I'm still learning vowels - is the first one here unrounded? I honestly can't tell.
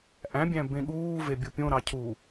yes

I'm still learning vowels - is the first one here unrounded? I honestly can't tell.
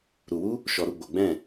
no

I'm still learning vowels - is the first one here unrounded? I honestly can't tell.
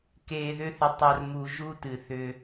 yes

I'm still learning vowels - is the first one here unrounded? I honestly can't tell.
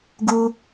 no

